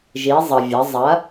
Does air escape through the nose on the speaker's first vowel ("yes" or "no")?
no